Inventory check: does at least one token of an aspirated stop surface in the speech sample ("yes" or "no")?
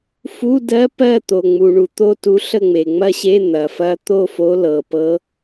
no